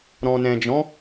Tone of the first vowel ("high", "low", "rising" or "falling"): low